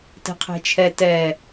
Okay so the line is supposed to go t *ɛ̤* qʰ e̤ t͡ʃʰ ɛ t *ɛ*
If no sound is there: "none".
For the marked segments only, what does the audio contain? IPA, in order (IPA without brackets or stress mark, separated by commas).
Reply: ɛ̤, ɛ